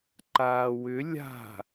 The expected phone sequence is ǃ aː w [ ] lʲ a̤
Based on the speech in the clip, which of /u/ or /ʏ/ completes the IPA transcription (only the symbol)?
ʏ